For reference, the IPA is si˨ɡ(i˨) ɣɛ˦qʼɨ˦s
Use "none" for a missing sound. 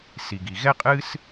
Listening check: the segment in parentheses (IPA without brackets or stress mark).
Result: i˨